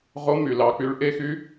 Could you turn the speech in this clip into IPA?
ʁo˧˥my˩lɑ˩˧ k͡py˩˧ɭʔe˧˥xy˧˥

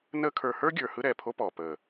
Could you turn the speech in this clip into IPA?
nəː˦kʰə˞˧ hə˞˦ ɡʲə˞˨ hɯ˦ɾɛː˨pʰo˦pɔː˨ pəː˨

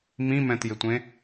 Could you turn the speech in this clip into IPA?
mĩmɛ̃tjɪtʷẽ

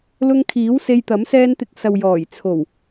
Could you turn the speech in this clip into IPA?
lʊ˧ŋkʰiː˨˥w se˧jt̪ɐ˨˥m sɛː˧nt̪ɪ˨˥k̚ sɐ˨wjɔː˨˩j t͡sʰo˨˩w

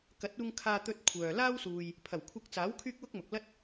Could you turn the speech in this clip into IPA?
kɐ˨˥t̚uː˧ŋ kʰaː˧t̪ɵ˧t̚ kʷʰœː˨ laː˥wsuː˨j | pʰɐ˨˩wkʷʰɐ˧k̚t͡saː˨˥w kʰyː˥k̚wʊ˥k̚mʊ˨k̚ lɐ˥t̚

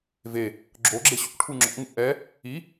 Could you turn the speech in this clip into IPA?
ve | ɡ͡ǁoɡ͡ǁe ɕṵʈʰu ŋ͡ǁɔ̰ŋṵ ʔɛ | i

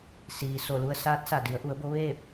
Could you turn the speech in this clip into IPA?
siː˩ so˧˩lu˧ə̯ saː˧˥t̚sa˧˩ di˩˧ə̯ʔu˩˧ə̯bo˧˥ ʋeː˥˨p̚

